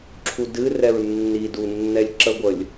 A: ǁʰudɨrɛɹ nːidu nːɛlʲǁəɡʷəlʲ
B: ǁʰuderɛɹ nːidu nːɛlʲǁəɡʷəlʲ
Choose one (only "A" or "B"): A